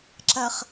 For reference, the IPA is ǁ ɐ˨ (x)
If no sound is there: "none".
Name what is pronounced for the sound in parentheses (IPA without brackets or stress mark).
χ